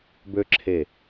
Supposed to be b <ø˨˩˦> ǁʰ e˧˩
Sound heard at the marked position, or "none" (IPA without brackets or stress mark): ø˦